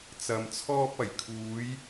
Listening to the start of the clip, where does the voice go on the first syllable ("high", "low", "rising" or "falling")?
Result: low